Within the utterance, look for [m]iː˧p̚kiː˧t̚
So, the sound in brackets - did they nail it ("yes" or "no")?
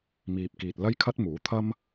yes